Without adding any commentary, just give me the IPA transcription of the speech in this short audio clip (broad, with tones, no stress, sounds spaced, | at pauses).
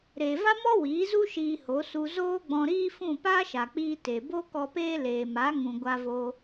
ɾ eː˨ v a˦ m ɔ˦ w iː˨˦ z u˦ ʃ iː˧ h o˨˦ s u˧ z oː˦ ɡ͡b ɔ̃˧ ɾ iː˦ f ũ˦˨ p aː˦ ʃ a˨ k͡p iː˧ t e˨ b o˦ k ɔ˧ p eː˦ l eː˨ m a˨˦ ŋ ũ˨ ɡʷ a˧ v o˧